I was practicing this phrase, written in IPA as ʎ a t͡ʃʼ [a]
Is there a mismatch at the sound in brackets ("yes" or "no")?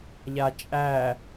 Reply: yes